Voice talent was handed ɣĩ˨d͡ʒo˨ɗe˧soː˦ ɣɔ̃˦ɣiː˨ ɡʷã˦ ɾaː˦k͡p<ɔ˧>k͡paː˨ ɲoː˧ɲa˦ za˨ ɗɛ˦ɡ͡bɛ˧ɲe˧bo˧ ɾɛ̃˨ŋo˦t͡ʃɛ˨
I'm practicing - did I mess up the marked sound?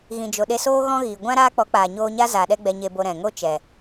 yes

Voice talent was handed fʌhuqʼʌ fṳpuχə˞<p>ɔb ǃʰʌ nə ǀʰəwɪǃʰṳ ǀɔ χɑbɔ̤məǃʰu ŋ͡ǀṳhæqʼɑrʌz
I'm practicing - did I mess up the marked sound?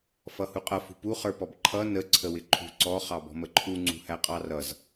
no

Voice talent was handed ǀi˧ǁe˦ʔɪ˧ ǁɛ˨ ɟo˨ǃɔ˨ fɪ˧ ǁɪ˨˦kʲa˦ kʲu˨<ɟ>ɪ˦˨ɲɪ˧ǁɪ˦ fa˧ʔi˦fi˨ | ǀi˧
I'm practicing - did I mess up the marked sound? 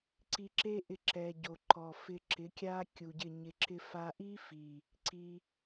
no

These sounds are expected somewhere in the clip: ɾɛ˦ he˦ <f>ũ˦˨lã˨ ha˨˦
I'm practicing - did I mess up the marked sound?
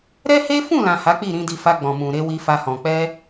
no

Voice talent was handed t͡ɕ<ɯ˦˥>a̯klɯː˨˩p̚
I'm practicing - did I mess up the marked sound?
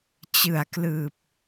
yes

